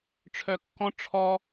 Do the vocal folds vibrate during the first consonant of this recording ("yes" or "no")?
no